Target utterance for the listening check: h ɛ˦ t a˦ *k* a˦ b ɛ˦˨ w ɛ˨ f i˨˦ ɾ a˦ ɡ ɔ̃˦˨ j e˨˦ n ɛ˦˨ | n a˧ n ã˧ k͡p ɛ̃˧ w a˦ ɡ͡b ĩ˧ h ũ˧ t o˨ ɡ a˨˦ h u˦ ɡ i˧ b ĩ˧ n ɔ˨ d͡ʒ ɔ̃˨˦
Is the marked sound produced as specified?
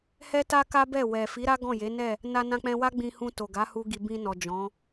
yes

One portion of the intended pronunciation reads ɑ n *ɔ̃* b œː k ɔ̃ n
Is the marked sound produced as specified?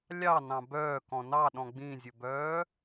no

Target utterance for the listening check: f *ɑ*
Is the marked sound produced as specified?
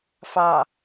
yes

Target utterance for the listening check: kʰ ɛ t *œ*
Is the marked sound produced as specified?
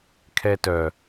yes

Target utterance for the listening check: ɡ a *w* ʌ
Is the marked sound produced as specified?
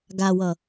yes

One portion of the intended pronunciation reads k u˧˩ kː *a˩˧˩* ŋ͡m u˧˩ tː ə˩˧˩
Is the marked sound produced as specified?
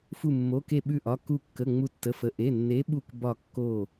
no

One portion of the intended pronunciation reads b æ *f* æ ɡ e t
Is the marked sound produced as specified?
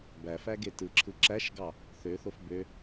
yes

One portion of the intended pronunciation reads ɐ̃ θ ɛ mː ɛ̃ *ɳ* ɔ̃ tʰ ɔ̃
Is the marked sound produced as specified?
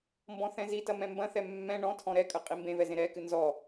yes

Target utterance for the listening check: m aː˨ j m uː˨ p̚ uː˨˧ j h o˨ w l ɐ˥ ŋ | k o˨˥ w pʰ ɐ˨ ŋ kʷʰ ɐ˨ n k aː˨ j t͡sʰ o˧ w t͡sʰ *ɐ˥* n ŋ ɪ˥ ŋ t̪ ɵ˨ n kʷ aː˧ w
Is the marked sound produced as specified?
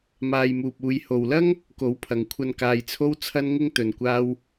yes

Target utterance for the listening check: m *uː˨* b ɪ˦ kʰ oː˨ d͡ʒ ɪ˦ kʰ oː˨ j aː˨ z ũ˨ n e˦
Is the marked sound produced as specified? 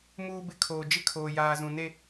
no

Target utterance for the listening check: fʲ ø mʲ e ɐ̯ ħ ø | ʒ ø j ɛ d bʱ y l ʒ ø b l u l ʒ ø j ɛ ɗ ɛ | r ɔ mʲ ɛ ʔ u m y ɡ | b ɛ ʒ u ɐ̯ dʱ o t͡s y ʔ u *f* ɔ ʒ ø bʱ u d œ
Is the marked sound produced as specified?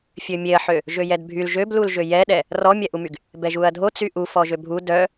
yes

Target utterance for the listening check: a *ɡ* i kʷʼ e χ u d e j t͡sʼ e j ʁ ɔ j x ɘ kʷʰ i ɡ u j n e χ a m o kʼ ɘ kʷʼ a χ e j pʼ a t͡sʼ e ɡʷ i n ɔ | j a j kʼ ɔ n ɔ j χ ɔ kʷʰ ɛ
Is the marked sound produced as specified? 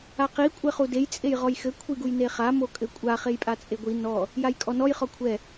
no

